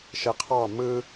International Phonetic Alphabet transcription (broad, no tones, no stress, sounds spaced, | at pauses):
ʃ e qʰ ɑ m ɯ